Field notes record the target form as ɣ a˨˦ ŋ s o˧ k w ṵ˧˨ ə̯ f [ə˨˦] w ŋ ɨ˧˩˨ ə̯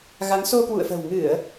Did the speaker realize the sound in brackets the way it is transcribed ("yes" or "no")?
no